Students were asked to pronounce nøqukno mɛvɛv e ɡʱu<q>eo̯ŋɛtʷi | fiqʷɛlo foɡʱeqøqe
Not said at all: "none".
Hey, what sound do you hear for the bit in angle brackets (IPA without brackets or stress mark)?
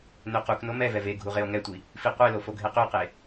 ʁ